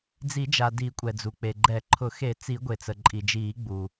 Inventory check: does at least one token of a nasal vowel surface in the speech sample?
no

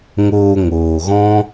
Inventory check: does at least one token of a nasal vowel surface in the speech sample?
yes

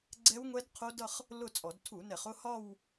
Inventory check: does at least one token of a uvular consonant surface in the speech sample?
yes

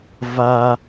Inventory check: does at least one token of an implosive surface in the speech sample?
no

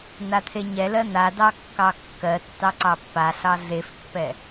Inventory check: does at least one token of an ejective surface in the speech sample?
no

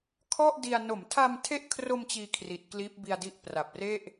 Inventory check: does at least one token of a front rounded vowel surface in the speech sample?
no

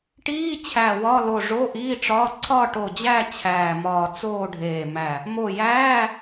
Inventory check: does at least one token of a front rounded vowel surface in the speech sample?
no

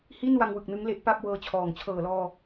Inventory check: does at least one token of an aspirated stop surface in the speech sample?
yes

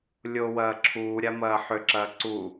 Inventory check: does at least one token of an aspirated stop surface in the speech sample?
yes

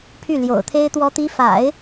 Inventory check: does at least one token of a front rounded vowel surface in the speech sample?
yes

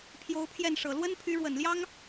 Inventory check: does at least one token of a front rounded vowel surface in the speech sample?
yes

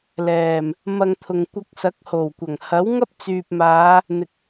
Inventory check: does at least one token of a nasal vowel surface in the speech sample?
no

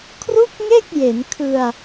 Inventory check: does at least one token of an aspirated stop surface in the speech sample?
yes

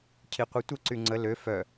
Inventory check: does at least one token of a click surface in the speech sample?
yes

